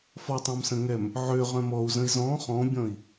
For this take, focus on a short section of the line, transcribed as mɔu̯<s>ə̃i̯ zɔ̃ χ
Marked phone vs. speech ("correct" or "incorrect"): incorrect